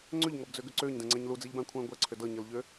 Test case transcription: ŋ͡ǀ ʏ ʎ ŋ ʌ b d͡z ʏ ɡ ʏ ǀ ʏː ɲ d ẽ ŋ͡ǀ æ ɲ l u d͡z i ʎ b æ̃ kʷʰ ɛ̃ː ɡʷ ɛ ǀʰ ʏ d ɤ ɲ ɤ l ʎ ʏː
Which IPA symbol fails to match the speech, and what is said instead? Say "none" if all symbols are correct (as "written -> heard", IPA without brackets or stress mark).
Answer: none